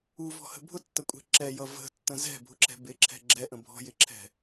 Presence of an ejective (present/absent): present